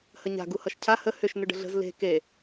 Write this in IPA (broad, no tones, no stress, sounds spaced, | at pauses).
h ə ɲ a̤ ɡ u h ʌ ʃ cʰ a h ə h ʏ ʃ n ʏ ɖ ə̤ ɮ ə̤ z l e̤ k e